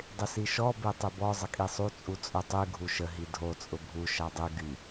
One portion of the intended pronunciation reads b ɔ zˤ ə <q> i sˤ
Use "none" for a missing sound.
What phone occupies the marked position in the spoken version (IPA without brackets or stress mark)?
kʼ